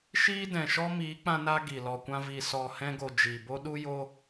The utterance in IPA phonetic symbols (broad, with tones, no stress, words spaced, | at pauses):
ʃiː˦dɛ̃˨ʃɔ˦miː˨˦ k͡pã˦na˦ɡi˨ lɔ˨kʷã˧vi˨ sɔ˨hɛ̃˧ɡo˨ d͡ʒi˨bo˦ ɗu˦ jo˧